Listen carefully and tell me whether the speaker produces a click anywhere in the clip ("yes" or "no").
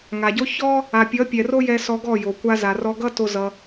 no